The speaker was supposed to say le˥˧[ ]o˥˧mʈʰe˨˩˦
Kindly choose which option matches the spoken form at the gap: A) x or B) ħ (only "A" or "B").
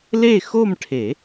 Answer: A